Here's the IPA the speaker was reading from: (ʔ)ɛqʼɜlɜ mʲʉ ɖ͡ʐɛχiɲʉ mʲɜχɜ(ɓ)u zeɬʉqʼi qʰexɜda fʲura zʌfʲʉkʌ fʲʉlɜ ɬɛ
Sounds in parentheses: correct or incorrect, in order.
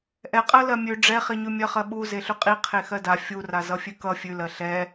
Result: correct, correct

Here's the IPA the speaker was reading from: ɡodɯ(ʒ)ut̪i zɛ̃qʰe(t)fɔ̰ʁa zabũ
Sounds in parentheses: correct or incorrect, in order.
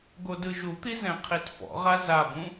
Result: correct, correct

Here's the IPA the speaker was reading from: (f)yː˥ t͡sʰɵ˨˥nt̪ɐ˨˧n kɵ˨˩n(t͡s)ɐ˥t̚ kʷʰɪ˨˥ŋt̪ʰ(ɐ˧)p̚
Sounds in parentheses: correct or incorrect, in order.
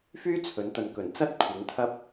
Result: correct, correct, incorrect: ɐ˥

